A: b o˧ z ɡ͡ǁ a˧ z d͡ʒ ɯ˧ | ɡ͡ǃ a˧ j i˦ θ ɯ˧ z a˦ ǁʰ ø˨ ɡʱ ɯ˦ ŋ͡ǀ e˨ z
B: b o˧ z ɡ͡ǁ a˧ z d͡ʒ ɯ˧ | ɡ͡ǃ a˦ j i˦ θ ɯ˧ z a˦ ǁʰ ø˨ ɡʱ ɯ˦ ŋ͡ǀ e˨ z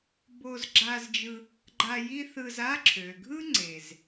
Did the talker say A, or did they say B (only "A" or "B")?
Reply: A